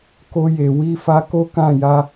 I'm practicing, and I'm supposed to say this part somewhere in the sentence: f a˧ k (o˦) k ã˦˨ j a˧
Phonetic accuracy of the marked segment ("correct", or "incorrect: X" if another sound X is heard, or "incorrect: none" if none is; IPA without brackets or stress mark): correct